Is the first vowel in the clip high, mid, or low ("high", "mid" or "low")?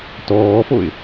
mid